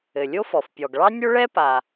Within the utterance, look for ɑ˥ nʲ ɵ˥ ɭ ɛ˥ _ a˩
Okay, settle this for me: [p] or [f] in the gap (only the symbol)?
p